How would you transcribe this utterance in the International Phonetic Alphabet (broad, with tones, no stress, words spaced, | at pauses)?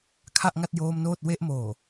kʰa˥˩ʔŋa˥˩t̚joː˦˥mnoː˥˩t̚ we˦˥ʔmoː˨˩